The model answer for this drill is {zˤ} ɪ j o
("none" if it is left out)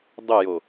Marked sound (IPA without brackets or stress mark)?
dˤ